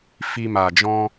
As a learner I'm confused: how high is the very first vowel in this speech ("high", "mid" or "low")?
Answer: high